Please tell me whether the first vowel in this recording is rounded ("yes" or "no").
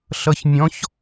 no